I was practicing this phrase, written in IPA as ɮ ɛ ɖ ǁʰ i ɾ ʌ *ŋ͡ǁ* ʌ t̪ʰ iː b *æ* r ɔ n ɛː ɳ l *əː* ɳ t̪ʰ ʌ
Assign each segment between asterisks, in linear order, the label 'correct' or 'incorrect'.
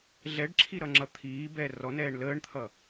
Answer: correct, incorrect: ɛ, correct

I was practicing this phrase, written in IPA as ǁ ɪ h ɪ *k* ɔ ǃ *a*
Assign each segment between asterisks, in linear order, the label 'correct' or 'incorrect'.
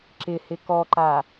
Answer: correct, correct

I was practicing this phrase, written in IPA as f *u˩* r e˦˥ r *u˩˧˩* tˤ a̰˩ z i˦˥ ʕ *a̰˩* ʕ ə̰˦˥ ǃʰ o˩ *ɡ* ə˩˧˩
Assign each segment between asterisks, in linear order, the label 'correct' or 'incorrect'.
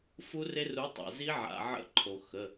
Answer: incorrect: u˦˥, incorrect: u˨˥, correct, incorrect: x

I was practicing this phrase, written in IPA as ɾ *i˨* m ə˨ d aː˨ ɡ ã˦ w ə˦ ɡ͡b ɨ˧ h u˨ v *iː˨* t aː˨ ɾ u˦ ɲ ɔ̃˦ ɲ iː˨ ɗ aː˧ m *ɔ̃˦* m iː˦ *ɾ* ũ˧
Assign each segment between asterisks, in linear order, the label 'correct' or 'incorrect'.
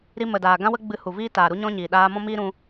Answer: incorrect: i˧, incorrect: iː˦, correct, correct

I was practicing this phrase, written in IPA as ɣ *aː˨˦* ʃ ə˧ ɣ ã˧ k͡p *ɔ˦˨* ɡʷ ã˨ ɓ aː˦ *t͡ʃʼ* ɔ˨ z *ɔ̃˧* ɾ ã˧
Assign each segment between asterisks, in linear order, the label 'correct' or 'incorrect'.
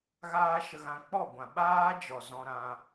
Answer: incorrect: aː˦, correct, incorrect: d͡ʒ, correct

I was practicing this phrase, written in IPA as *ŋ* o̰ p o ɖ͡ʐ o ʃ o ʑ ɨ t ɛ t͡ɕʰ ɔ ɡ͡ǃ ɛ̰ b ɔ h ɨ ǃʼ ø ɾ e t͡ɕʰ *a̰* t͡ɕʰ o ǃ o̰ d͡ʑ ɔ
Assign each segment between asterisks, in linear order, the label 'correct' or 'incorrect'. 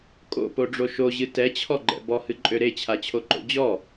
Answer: incorrect: kʼ, incorrect: a

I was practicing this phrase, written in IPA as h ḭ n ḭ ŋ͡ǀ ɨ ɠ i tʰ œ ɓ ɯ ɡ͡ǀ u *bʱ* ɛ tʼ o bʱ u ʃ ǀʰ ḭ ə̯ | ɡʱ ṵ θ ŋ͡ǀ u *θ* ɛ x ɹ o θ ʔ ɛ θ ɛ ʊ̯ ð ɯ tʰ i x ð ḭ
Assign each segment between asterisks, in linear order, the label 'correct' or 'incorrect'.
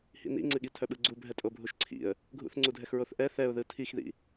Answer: correct, incorrect: dʱ

